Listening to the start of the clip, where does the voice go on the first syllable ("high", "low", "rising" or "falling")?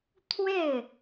falling